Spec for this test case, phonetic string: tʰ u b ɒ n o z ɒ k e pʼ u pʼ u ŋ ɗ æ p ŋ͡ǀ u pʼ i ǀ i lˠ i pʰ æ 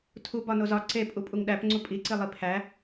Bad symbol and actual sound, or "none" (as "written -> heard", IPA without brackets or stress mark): k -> ǀ